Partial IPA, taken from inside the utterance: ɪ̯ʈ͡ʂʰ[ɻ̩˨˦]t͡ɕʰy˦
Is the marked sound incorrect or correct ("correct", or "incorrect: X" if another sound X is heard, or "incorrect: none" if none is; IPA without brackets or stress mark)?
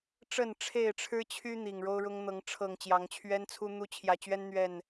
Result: incorrect: ɻ̩˦